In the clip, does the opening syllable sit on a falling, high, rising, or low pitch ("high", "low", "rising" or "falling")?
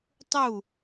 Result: falling